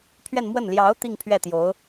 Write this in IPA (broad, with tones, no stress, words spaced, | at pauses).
pʰɥɛ˥˧nmwə˥˩n ljɑ˧˥ʊ̯ t̪i˥˧ŋ pʰɥɛ˥˩t̪jo˧˥ʊ̯